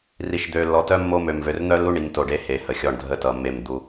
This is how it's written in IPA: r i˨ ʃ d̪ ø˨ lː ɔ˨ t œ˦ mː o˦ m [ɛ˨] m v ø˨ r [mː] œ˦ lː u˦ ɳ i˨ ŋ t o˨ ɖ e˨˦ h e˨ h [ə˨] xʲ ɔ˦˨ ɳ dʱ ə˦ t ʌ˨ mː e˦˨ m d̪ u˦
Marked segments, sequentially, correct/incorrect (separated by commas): incorrect, incorrect, correct